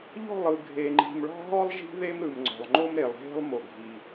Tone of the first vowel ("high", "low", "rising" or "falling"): falling